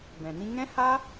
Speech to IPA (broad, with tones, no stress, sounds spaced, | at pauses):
b ɛ̃˨ n ĩ˧ ŋ ɛ̃˦ h a˦